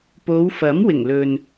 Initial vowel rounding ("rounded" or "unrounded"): rounded